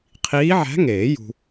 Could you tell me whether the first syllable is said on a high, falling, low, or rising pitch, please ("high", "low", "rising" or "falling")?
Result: rising